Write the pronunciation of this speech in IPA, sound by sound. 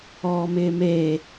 ɔː m ɪː m eː

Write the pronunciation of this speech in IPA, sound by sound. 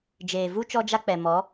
d͡ʒ eː˨ v u˦ t͡ʃ ɔ˦ d͡ʒ a˦ k͡p ɛ˨ m ɔ˨˦

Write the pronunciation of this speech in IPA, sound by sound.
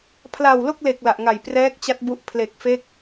pʰ l a˨˩ w l o˥˩ k̚ l e˨˩ k̚ l a˨˩ ʔ ŋ a˨˩ j p r ɛː˦˥ k̚ t͡ɕ a˦˥ t̚ b u˦˥ ʔ pʰ l e˨˩ k̚ f e˦˥ k̚

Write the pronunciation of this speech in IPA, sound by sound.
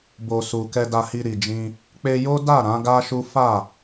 b o˨ s u˨ k ɛ˧ d a˧ h i˧ ɾ i˨ d͡ʒ ĩ˧ | k͡p e˧ j o˦ d a˦˨ ɾ ã˨˦ ɡ a˦ ʃ u˦ f a˦˨

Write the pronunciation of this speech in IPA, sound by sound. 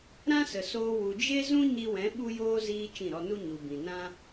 ɾ ã˦ s ə˨ s oː˧ w u˨ d͡ʒ e˦ z ũ˦ ɲ i˧ w ɛ̃˨˦ ɓ u˦ j oː˦ z iː˦ t͡ʃ ĩ˦˨ ɾ ɔ˧ n u˦ ɲ u˨ b ĩ˨ n ã˦

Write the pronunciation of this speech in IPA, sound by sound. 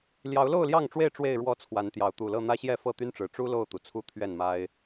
l j ɑ˨˦ ʊ̯ l o˥˨ ʊ̯ l j ɑ˥˨ ŋ ʈ͡ʂ w e˥˨ ɪ̯ ʈ͡ʂ w e˥˨ ɪ̯ ɻ w ɔ˦ t͡sʰ w a˨˦ n t̪ j ɑ˨˦ ʊ̯ t̪ u˨˩ l ɤ˥˨ n̪ ä˦ ɕ j ɛ˥˨ f ɤ˥˨ t̪ y˦ n ʈ͡ʂ ɻ̩˨˩ ʈ͡ʂ u˦ l o˥˨ ʊ̯ t̪ u˩ t͡sʰ u˦ t̪ʰ ɥ ɛ˥˨ n m a˦ ɪ̯

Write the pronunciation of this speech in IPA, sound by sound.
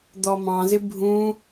d̪ ɔ m ɑ̃ z ɪ bʱ ũ

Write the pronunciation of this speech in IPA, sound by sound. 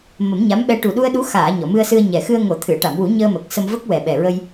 m ə˨˩˦ m ɲ a˧˥ m ɓ ɛ˧ ʈ u˨˩ ɗ u˧ ə̯ ɗ u˧˥ x aː˨˩˨ ɲ ɔ˨˩˨ m ɨ˧ ə̯ s ɨ˧ ə̯ ɲ ɛ˨˩ x ɨ˧ ə̯ ŋ o˨˩˦ t̪ʰ ɨ˨˩˨ ə̯ ʈ a˨˩˨ m w u˨˩˦ ɲ əː˧ m ə˨˩ k̚ s ə˧ m v ə˦˥ k̚ w ɛ˨˩ ɓ ɛ˨˩ ɹ ə˧ j

